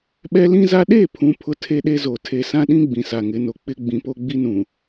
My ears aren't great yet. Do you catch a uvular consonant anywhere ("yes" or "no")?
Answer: no